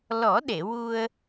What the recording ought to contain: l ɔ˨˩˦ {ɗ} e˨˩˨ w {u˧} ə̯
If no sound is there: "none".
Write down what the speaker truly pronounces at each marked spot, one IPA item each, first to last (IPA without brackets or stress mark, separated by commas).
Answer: ɗ, u˧